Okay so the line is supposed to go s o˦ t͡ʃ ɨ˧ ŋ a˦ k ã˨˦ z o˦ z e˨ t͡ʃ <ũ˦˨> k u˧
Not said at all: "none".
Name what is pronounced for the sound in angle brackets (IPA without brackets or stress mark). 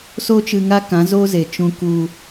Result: ũ˧